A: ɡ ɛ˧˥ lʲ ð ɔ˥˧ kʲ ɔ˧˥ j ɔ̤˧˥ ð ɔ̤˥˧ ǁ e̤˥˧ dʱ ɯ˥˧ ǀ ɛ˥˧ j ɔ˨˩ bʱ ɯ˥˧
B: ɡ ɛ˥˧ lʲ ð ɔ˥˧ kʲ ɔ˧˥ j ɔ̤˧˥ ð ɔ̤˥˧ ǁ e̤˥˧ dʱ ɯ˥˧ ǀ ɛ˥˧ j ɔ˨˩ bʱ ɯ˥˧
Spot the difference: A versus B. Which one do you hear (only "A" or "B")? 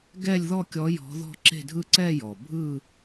B